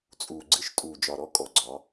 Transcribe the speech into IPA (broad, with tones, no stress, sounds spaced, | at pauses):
t͡sʼ uː˨ ɡ͡ǀ ɨ˦ ʃ tʼ uː˨ d͡ʒ ɒ˨ ɾ ɔ˦ kʼ ɔ˨ ɡ͡ǀ ɒ˨˦